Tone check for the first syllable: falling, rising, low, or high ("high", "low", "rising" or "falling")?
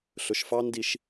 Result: rising